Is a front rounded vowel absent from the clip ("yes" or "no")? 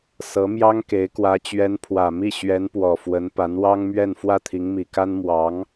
yes